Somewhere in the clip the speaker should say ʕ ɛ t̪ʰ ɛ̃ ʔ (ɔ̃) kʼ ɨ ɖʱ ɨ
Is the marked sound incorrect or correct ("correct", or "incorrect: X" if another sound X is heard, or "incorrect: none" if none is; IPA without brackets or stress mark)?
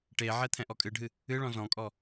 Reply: incorrect: ɔ